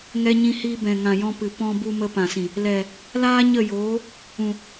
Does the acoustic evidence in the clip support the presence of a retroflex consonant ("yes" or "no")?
no